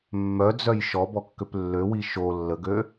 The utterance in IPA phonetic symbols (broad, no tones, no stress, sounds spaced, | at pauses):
mː œ d͡z œ j ʃ ɔ b ɔ kː ø p lː ø w i ʃ o lː ə ɡ ø